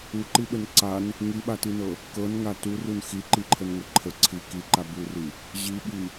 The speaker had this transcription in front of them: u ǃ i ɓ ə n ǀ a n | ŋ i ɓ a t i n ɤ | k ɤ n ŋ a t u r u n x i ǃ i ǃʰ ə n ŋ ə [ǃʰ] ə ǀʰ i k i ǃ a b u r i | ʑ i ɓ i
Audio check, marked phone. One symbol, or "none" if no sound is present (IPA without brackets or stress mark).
ǃʰ